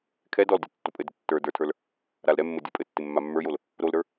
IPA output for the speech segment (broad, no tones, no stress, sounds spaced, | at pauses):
kʰ ɛ d ɔ l dʲ ɔ tː o pʼ ɘ d ɪ tː ə˞ d ə˞ tʰ ə˞ l | ɾ a l ɾ ɛ mː ɘ dʲ ə˞ pʼ ɘ tː ɪ mː a mː ə˞ j o l | ɾ o l ɾ ə˞